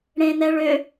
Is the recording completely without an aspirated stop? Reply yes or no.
yes